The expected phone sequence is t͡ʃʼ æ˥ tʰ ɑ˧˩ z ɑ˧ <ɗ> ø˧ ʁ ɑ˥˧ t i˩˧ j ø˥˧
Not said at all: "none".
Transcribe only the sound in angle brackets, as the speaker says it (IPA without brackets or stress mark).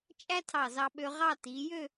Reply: ɓ